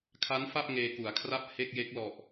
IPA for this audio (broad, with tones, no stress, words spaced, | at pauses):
kʰa˦˥nfa˥˩p̚ ŋeː˧ku˩˦a̯kʰra˥˩p̚ he˥˩k̚je˦˥k̚ lɔ˨˩ʔ